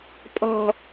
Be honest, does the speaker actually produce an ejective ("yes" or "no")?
yes